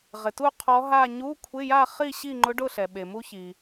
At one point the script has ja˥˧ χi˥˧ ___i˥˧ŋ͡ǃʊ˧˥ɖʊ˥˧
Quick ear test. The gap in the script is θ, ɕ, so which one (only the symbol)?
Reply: ɕ